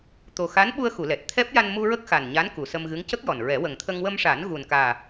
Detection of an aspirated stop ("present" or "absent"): present